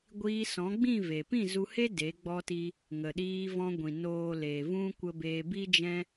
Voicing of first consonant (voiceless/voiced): voiced